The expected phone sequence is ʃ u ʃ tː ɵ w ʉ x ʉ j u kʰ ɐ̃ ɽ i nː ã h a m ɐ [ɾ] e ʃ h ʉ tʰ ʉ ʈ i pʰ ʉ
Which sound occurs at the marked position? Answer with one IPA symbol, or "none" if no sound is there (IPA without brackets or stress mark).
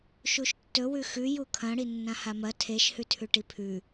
tʰ